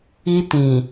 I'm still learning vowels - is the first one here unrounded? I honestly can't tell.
yes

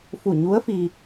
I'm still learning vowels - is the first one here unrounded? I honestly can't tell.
no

